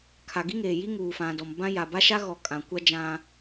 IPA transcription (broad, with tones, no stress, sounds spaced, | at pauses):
kʰ a˨ ɡ i˦ ŋ eː˨ j i˦ ŋ uː˨ f ã˨ d ɔ˨ m b ã˦ j a˨ b a˦ ʃ a˦ ɣ ɔ˨ kʼ ã˨ kʷ a˦ d͡ʒ ã˦